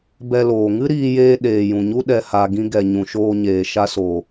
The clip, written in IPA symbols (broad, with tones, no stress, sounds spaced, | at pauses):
b ɛ˧ l oː˨ ŋ ɨ˦ ɾ iː˧ j eː˧ ɗ eː˨ j ũ˨ ɲ u˦ ɗ ɛ˨ h a˨ ɡ ĩ˧ ɡ ɛ˨ ɲ ũ˨ ʃ oː˧ ɲ eː˨ ʃ a˧ s oː˨